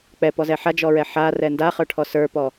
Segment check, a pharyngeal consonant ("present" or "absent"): present